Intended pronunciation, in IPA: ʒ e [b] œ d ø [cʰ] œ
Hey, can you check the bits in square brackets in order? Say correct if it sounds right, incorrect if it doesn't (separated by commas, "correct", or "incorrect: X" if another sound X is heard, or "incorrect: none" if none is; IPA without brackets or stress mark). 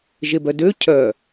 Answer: correct, correct